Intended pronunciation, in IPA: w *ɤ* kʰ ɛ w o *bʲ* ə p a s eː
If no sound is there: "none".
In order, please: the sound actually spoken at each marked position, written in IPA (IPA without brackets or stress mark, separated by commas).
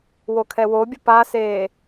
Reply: o, bʲ